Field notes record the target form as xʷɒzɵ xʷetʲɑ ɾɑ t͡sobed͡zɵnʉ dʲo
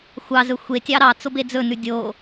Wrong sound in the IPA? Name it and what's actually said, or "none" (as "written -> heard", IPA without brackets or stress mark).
ɒ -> ɑ